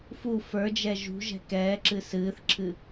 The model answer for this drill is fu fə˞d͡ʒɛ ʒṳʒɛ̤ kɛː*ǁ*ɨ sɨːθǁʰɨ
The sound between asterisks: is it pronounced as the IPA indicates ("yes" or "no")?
yes